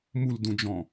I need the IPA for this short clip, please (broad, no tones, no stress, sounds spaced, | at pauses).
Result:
m u l d ũ d͡ʒ ɔ̃